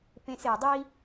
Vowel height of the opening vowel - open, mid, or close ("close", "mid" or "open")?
mid